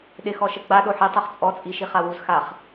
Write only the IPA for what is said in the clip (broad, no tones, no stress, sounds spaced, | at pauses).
ɗ ɪ x ɔ ʃ ə ɡ͡b a ɗ o ħ i tˤ o χ t͡sʼ ɔ t͡sʼ i ʃ i χ a w u z x a χ